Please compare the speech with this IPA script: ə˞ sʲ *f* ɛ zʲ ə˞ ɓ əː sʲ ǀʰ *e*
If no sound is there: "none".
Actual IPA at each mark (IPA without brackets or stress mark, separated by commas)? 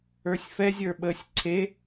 f, e